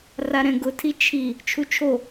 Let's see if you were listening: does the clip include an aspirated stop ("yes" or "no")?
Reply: yes